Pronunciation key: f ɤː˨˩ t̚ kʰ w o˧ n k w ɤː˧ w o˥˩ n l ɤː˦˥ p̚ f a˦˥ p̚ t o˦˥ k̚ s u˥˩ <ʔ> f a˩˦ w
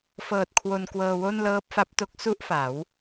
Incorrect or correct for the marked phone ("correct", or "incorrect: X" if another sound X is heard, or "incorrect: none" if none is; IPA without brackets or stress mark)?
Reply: correct